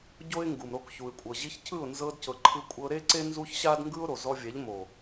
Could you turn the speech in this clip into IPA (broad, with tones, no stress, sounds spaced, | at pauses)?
ɟ o˦ ɪ̯ ŋ ɡ u˨ m ɾ o˧ k ç u˨ ɪ̯ kʷʼ ɤ˨ ʑ i˧ ç cʰ ɯ˦˨ ʊ̯ n z ɤ˧ d c ɤ˨ ǃʰ ɯ˧ kʷʼ ɤ˧ ɾ e˦ ǀ e˦ n z u˦ ç ɕ a˦ d ŋ ɡ ɯ˦ ʊ̯ ɾ o˨ z ɔ˦ vʲ ɛ˨˦ ʎ m o˨